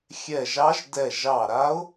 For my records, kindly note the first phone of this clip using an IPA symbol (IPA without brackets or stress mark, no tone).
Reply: xʲ